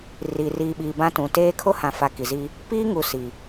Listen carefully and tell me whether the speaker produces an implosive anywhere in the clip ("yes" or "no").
yes